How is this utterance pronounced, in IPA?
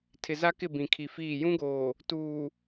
tʰɪ˨za˦kɪ˦˨ bĩ˨kʰi˨fiː˦˨ jũ˦ɡoː˨ | tuː˨

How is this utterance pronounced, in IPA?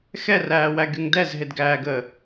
xɛræːwæɡyŋ dɛzɦedɡæːɡəː

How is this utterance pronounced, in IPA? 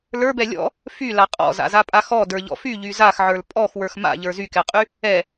lə˞bɛ lʲɔ̰ | fyla qʼɔ̰za̰zapʼa xɔdə˞ʎɔ̰ fyʎy zaxʕə˞l pʼɔxwə˞x ma̰ʎə˞ zykɛqʼy | ɛ

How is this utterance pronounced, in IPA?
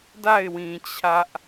da˦˨ɪ̯wĩ˨ t͡ɕʰä˦ʔ

